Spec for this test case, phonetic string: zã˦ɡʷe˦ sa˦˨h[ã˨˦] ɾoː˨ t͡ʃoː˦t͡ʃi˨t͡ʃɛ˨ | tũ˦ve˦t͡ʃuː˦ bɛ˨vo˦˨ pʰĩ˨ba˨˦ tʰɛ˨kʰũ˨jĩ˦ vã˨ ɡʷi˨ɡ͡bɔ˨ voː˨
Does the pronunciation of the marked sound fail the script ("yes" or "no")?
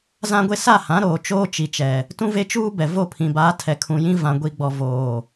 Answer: no